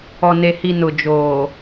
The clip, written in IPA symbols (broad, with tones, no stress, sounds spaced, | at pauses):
ɔ˨ n e˨ h i˨ n ʊ˨ d͡ʒ oː˨